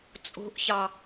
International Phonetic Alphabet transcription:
t͡sʼ o̤ ʔ ç ɑ

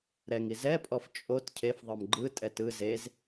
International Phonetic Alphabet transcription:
ɾ ɛ ŋ i z ɛ pʼ ɔ f t͡ʃʼ o t cʰ e f ðˤ ɤ m ɡ͡ǃ ɯ tʼ ɛ t ɯ z e z

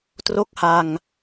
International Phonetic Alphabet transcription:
t r o˥˩ k̚ h a˧ ŋ

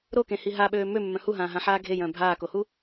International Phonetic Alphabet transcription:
ɾ o k ẽ h i ɦ a ɓ øː m ø mː œ̃ h u ɦ ãː ɦ ã ħ aː ɡʱ e j œ̃ː bʱ aː k o h u

